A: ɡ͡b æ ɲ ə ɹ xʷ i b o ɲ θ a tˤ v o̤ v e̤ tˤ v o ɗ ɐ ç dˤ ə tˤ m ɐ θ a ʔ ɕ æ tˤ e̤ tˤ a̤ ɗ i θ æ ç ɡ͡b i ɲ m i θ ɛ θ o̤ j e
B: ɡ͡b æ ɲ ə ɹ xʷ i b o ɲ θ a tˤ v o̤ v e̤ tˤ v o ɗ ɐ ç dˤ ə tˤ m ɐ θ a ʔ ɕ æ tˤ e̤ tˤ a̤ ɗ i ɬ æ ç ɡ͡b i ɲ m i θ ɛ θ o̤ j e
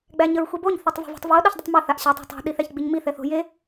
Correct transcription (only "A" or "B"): A